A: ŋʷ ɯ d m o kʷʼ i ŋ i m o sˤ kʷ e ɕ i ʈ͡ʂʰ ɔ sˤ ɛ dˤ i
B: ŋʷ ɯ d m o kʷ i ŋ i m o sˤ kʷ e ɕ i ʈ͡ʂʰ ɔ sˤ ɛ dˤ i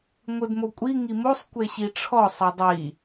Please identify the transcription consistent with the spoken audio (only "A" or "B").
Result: A